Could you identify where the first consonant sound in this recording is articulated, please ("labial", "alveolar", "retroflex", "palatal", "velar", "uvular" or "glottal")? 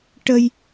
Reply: retroflex